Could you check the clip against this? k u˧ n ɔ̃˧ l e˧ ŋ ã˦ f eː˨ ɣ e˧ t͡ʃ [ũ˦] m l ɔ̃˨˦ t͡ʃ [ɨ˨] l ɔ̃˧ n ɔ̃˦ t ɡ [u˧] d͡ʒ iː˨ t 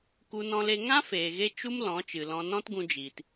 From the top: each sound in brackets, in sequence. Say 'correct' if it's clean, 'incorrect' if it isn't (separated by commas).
incorrect, correct, incorrect